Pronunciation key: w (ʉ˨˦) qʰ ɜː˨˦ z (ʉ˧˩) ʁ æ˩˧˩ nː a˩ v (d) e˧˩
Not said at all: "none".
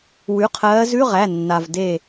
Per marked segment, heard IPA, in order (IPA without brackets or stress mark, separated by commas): ʉ˩˧˩, ʉ˧˥˧, d